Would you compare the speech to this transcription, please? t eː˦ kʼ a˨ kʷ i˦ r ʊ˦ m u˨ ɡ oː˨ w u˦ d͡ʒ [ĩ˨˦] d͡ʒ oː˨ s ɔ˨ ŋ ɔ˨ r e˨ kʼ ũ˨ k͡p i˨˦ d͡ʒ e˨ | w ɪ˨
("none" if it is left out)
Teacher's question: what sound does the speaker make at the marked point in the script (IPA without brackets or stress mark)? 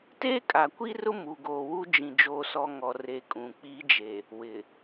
ĩ˨